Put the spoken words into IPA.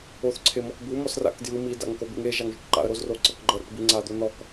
o θ ǀʰ e m ɔ k b u m ɔ s r a̰ k d j ɯ m i d a̰ ŋ k o b ḭ ŋ e ʒ a ŋ ʒ o̰ ʈ ǃ a̰ ə̯ ɾ o z r o ǀ ɤ k ɡ͡ǃ ɤ ɾ o̰ ʈ b i ŋ͡ǀ a d̪ o n ɔ k

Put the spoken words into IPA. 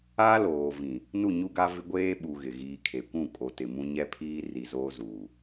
a˦ l oː˨ v ĩ˨ | n u˦˨ ɲ u˦ ɡ a˦ v ɪ˦ ɡʷ eː˦ ɓ u˨ ɣ ɪ˨ ɣ iː˨ kʰ e˨ kʷ ũ˦˨ kʼ o˨ t ɪ˨ m ũ˦ ɲ ɛ˦ pʰ iː˦ r i˨ z oː˦ z uː˨

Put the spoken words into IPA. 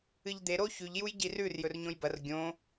ɨ ʎ d̪ e ɾ o ç ʉ ʎ j u j ɟ i r ʉ r j ɵ r ɲ õ j b ɐ r ɡʲ õ

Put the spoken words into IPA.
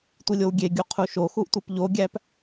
tʷ i lʲ o w ɡʲ e ɡʲ u qʰ u ʃ o x u ʔ tʷ e p ʎ o ɡʲ æ p

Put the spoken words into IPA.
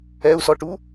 ɛ u̯ s ɔ ʈ u

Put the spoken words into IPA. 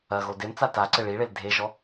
ɐ ɣ o d e m t͡s a t a ǀ ɘ ɭ i ɭ e l dʱ e ʒ ɔ

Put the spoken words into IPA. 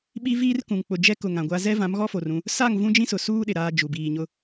ɓ i˦ v iː˦ r k ũ˨ ŋ k͡p ʊ˨ d͡ʒ ɛ˦ k ʊ˨ ŋ ã˨ ɡʷ a˦ z ɛ˦ v ã˨˦ m ɣ ɔ˦ f o˨ r ũ˦ | s a˦˨ ŋ v ũ˦ d͡ʒ ĩ˦ s ʊ˨ s uː˦ ɗ ɪ˨ ɾ aː˦ d͡ʒ u˨ b iː˨ ɲ ʊ˦

